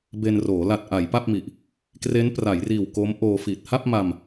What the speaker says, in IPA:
be˧nroː˩˦ la˨˩t̚ ʔa˩˦jpa˥˩p̚mi˨˩ʔ | kre˦˥npra˩˦jriː˨˩w ko˦˥mʔoː˧ fi˨˩t̚ha˥˩p̚ma˧m

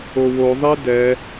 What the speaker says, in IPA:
owo ðˤidɛ

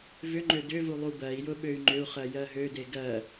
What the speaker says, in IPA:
vʏŋ͡ǃø dʏvu lˠubɜi̯jʊ ɓøy̯ŋ͡ǃʏu̯χɜ jɜɦøde ɡɜ

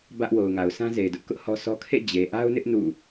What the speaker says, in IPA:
bä˦ʔ wo˨ʊ̯ŋa˨ʊ̯ sʰã˦ze˨ɪ̯dʊ˦ʔkʊ˦ʔ hɔ˦sɔ˦ kʰḛ˦˨d͡ʑe˨ʔa˦ʊ̯nɪ˦ʔ nṵ˦˨

